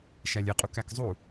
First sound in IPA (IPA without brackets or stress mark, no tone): ʃ